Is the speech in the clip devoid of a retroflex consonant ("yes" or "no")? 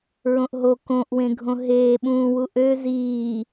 yes